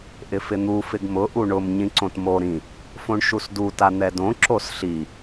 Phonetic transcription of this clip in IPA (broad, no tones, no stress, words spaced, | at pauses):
ʔɪfɪn̪u fɪɡmʊ ʔuɳʊm ɲĩǀõtmo ɾĩ | fõɳʃusdu tan̪ɛdõ ǁosɬi